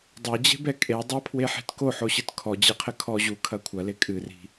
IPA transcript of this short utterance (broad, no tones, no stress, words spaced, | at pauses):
dˤad͡ʑe̤bɛ kʼe dˤɐpʰweħi̤t koħoɕɨt kʰɔd͡ʑeqʰɘ kʰɔ ʑukʰɐ kʷʰɐle kʼɨri̤